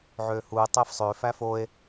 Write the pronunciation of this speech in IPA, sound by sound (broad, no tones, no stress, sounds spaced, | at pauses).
ʕ ø h u e̯ tˤ e f sˤ ø f æ f o e̯